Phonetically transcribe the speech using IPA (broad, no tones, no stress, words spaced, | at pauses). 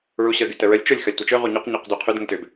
ɹuɕə ɡytəɹəlʲ t͡ʃʊlʲ xɐlʲtʷɐt͡ʃʏ ʁuɲuq ɲuqdyqʰʏd ŋətʏb